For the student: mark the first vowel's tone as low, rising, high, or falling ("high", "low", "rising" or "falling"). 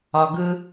high